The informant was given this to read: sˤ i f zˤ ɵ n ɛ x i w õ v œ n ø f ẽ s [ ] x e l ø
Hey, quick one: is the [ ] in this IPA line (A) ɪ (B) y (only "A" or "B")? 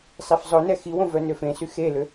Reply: B